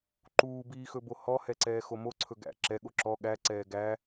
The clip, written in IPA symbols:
ǃ uː b iː x ɵ b o h ɔ h ɛ ǀ ɛː x o m o ǀʰ ɵ ɡ æ̰ ǁ ɛ ɠ o ǁ ɔ ɠ æ ǀ ɛː ɡ æ

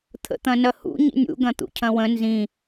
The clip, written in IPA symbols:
t̪ʰ ə̰ t̪ ɐ̃ n ɐ h ṵ ɲ ḭ nʲ ṵ ɡ ɐ̃ t̪ ṵ cʰ ɐ̃ w ə̃ n z ĩ

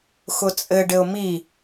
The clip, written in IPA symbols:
x ʊ t͡sʼ ɘ ɖ ɘ ʊ̯ m i

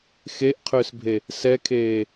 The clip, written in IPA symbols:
x e ʔ qʰ ʏː s bʱ e | s ɛ kʰ eː

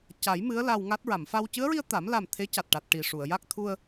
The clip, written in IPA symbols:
c a˨˩˦ j m ɨ˧˥ ə̯ l a˧ w ŋ a˦˥ t̚ ɹ a˨˩˨ m f a˧ w c ɨ˧˥ ə̯ ɹ i˧ ə̯ t̪ a˨˩˦ m l a˨˩ m t̪ʰ e˧˥ c a˨˩ t̚ ʈ a˨˩ t̚ ʈ i˨˩ ʂ u˨˩˨ ə̯ j a˦˥ k̚ t̪ʰ u˧ ə̯

